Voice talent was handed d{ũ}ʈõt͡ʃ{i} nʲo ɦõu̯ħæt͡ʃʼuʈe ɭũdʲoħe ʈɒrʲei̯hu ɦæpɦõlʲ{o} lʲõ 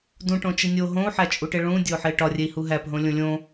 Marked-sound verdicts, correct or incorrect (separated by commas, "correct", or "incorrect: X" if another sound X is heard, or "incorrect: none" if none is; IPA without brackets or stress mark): correct, correct, incorrect: õ